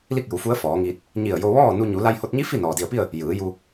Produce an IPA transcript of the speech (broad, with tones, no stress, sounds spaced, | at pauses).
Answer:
l i˥˨ k̚ j u˩˧ f u˧˥ ə̯ f ɔː˩˧ ŋ iː˧ t̚ | ɲ i˧˩ ə̯ j o˧ ʋ ɔː˥˨ n u˧ ɲ u˩˧ l a˧ j h o˧ t̚ ɲ i˧˥ f i˥˨ n ɔː˩ d i˧˩ ə̯ p i˥˨ ə̯ | j ɯː˩˧ j u˧